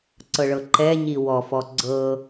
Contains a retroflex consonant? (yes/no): yes